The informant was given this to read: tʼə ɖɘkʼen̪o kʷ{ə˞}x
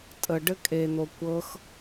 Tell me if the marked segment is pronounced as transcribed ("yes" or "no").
no